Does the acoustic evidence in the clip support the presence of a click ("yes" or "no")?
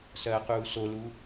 no